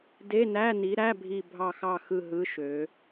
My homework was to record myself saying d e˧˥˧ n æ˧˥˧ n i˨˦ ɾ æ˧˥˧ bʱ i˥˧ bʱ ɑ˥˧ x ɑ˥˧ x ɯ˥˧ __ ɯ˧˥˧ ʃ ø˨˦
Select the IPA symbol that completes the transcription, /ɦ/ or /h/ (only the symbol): ɦ